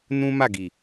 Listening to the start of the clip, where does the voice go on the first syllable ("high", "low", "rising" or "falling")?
high